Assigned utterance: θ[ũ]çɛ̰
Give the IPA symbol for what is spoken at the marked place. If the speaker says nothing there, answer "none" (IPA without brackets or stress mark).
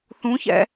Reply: ũ